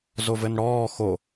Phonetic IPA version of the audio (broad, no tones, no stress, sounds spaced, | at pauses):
z o v ɘ n ɽ ɔː x o